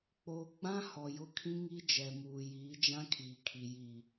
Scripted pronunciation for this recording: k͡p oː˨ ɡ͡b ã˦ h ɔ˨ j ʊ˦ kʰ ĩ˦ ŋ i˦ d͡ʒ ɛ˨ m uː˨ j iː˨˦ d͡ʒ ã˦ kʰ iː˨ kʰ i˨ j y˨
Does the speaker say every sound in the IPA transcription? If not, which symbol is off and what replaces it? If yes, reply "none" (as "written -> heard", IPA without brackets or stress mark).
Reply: y˨ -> i˨